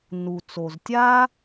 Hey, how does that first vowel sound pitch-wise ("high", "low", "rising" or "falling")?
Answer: low